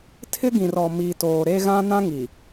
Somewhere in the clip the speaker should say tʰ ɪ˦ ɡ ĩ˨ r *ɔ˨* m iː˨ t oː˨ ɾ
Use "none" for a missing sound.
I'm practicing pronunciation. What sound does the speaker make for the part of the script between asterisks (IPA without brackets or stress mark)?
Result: ɔ˨